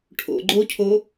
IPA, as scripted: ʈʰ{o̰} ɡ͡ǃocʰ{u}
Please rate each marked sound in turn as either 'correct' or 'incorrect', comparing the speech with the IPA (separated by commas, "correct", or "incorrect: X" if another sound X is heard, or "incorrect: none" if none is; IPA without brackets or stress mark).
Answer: correct, incorrect: o